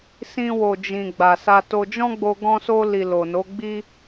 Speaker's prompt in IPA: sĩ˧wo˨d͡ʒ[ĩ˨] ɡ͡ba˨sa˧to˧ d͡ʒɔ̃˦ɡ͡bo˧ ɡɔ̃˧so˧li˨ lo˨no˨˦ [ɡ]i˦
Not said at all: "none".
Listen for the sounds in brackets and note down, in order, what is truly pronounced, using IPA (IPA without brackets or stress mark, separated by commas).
ĩ˨, ɡ͡b